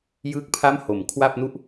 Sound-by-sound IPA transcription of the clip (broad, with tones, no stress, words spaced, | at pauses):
jɯː˥˩k̚ pʰa˥˩mho˩˦m kʰwa˥˩p̚nu˥˩ʔ